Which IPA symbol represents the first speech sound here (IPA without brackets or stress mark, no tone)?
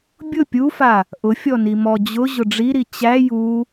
bʲ